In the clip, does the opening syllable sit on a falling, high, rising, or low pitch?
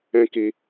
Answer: high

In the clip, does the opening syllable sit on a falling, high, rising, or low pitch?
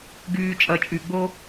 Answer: low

